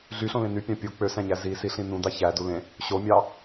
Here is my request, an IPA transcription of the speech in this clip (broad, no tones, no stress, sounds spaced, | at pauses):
ɮ y ɬ õ l ẽ n y pʲ ɑ̃ pʲ o k͡p ø s æ̃ ɲ æ z i s i ɬ ĩ n ũ d ɑ ç æ d u l ẽ | ɕ o mʲ ɑ